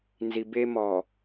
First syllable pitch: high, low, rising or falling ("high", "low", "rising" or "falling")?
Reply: low